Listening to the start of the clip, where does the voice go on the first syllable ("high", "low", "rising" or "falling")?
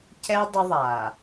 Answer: high